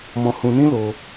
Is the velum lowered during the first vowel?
yes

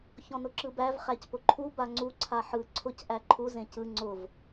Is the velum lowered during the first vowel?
yes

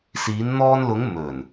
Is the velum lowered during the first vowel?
no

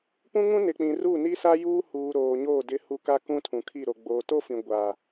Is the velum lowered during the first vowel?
yes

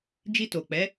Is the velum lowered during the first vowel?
no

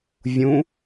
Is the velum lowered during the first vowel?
yes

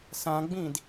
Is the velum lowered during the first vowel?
yes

